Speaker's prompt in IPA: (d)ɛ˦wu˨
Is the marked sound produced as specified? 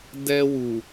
yes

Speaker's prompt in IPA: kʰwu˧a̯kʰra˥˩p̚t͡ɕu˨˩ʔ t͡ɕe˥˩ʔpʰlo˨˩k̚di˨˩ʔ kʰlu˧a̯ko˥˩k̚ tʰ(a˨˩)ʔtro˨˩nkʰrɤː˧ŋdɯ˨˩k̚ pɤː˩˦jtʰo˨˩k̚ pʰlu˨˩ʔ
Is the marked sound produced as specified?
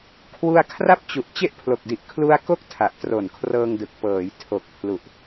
yes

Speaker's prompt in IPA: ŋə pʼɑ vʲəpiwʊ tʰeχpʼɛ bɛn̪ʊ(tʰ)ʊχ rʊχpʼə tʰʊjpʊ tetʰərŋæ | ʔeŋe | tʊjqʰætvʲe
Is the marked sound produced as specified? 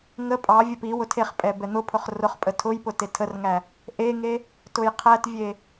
no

